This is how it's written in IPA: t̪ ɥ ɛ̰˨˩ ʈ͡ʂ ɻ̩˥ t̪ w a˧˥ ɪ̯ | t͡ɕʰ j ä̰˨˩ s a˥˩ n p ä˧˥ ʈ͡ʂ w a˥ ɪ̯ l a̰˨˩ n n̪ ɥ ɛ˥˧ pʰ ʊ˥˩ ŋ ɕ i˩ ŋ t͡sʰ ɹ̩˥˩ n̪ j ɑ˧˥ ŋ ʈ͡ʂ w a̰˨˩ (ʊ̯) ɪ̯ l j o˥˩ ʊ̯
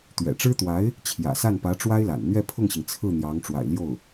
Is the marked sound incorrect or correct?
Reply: incorrect